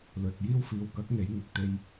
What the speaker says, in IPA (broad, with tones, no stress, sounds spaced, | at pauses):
l ɵ˨ t̚ j iː˧ w f iː˨ w k ɐ˨˥ k̚ ŋ e˨˧ j ŋ ɪ˧ k̚ t̪ e˥ j